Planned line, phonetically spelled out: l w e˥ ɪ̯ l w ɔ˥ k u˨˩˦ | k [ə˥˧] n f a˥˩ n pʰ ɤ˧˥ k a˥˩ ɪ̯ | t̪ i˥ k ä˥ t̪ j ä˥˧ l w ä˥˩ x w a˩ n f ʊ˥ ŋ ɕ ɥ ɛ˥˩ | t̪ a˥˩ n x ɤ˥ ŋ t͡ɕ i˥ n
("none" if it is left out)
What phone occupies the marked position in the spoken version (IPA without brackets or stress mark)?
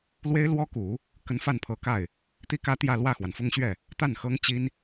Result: ə˧˥